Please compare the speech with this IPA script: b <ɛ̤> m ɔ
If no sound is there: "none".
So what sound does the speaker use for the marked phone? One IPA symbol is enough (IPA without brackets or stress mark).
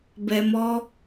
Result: ɛ